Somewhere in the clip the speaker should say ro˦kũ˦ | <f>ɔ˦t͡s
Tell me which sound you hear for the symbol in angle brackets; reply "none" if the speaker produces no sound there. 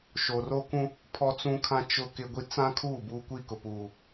pʰ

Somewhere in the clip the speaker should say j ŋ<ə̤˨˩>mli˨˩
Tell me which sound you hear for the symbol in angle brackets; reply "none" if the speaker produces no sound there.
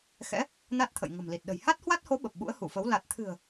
ə̤˨˩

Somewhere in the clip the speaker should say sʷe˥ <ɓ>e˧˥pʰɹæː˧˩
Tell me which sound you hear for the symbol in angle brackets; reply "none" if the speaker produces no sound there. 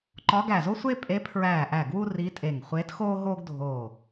pʼ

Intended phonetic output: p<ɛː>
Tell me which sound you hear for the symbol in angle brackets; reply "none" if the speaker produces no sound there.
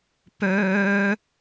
œː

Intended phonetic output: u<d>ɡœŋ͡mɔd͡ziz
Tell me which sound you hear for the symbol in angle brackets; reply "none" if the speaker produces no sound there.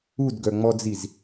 d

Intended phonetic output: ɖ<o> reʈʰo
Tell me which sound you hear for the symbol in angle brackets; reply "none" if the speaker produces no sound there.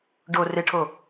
o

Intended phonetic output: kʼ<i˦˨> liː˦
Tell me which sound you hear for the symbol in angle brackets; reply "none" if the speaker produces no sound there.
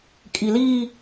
i˦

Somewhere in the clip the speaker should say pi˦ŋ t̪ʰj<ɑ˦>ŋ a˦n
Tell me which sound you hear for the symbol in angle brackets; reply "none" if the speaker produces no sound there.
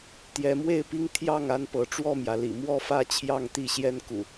ɑ˥˨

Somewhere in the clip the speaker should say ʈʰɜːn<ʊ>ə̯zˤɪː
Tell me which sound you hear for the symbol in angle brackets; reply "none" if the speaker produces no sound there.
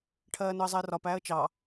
ʊ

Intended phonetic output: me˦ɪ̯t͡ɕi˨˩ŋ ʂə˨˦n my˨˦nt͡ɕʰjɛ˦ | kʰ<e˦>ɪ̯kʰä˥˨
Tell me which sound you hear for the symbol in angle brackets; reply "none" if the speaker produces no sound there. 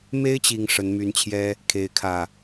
e˦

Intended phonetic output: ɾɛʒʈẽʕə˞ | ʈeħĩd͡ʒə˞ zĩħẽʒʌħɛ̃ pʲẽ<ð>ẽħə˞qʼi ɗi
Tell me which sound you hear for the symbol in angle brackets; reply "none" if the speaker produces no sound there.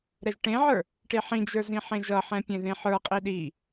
ð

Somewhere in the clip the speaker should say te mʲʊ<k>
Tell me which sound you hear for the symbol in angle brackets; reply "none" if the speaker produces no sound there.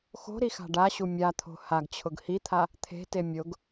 ɡ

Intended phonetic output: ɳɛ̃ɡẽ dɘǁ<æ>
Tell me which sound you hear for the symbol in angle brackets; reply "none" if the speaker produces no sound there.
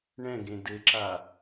a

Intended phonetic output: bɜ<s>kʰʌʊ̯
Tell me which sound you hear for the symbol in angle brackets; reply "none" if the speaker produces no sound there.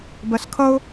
s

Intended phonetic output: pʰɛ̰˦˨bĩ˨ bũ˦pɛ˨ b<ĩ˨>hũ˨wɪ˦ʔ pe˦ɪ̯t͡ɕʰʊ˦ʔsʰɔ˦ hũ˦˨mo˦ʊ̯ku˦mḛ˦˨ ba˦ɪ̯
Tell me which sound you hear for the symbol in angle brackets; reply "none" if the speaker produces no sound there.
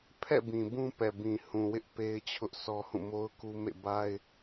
ĩ˨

